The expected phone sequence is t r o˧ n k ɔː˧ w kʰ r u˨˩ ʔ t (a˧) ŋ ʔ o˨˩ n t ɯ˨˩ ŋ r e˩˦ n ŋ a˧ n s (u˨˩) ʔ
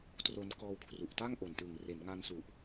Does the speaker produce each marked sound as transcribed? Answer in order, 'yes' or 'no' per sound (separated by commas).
no, yes